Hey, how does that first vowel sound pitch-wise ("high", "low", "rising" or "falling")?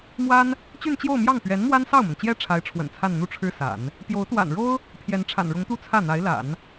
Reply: high